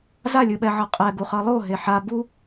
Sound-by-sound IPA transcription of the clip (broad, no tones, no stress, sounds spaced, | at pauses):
z a lʲ ɯ ɓ ɛ ʕ ʌ qʼ ɛ ɡ u χ ʌ lˠ o ɦ e ħ a b u